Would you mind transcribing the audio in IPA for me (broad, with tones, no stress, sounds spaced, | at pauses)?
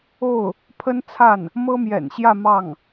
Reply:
o˥˩ ʊ̯ | pʰ ə˥ n t͡sʰ a˥˩ n | m ɤ˥ m j ɛ̰˨˩ n ɕ j ä˥˧ m ɑ˥˩ ŋ